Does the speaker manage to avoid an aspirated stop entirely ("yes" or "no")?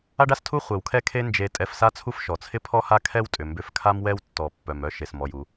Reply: no